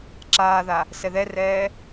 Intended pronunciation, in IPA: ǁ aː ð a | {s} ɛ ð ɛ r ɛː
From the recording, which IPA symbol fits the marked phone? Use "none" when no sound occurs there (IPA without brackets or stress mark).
s